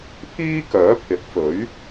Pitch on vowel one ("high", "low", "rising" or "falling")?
high